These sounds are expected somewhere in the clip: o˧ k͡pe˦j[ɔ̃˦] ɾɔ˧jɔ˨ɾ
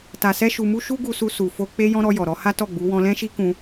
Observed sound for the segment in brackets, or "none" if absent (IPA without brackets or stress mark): ɔ̃˦